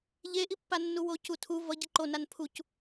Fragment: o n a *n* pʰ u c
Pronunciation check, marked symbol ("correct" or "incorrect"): correct